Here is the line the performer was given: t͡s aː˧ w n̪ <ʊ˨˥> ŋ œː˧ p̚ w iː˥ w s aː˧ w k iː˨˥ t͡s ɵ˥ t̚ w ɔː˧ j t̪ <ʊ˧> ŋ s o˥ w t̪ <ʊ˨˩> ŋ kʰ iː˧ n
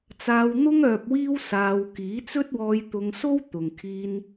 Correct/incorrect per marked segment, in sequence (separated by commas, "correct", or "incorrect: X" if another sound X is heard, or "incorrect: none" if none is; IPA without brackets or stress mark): incorrect: ʊ˥, correct, incorrect: ʊ˨